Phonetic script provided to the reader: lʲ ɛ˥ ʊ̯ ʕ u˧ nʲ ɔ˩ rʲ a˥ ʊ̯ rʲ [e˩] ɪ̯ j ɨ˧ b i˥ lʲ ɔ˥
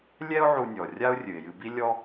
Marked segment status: incorrect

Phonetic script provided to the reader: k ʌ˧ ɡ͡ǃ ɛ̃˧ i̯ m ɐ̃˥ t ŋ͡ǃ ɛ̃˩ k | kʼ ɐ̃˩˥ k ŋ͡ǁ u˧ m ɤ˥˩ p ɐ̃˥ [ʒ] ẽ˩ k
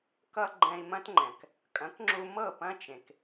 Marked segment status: incorrect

